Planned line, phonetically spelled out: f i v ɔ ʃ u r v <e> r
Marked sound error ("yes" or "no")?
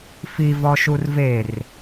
no